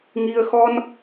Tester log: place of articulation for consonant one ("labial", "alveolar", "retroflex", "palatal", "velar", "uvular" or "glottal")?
velar